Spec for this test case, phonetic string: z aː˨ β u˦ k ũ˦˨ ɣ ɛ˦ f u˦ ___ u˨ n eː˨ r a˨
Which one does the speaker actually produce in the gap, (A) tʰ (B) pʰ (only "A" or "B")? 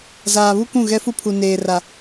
B